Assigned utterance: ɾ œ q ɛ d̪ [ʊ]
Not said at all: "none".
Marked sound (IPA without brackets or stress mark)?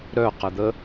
ə